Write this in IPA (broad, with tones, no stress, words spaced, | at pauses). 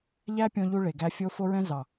ʎæ˦pʲɔ̃˧ʎu˧ ɭe˨ɡæ˧ fʲo˧ fo˧ɹɛ̃˧ zɑ˨